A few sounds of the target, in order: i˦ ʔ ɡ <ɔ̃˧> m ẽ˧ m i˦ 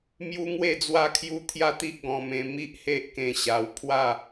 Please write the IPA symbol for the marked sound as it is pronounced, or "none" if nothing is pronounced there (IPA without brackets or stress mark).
ɔ̃˧